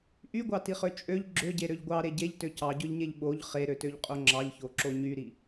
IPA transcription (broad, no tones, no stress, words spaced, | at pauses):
ʔyɡʷɑtiχø t͡ʃʼøʎ ɡ͡ǁøɟeɾøʎ ɡʷɑɾe ɟeʎtø cɑɟøʎɲeʎ ɓoʎ χeɾøtøʎqʼo ŋ͡ǁɑʎçoǁo ɲyɾi